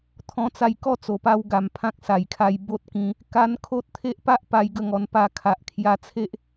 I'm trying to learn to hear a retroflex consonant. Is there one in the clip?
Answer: no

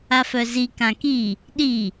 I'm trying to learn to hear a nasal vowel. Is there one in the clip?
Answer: yes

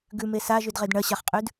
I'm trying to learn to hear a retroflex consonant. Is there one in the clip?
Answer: yes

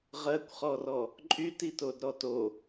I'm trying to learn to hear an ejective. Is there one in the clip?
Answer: yes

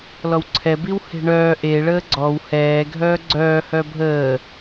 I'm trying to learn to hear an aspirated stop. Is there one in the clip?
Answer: yes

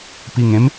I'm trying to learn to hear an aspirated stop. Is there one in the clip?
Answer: no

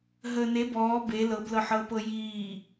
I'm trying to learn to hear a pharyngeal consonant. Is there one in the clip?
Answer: yes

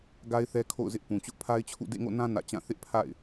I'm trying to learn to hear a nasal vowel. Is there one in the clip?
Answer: yes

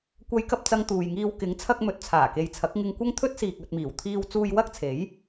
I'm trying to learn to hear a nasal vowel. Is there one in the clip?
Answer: no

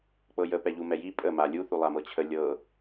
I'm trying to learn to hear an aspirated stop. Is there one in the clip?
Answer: yes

